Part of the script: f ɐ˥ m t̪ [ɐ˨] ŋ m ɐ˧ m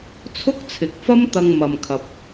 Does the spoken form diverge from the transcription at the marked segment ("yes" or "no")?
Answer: yes